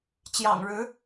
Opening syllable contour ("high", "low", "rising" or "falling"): low